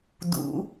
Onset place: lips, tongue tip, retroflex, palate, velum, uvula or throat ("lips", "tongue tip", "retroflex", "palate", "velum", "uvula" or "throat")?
tongue tip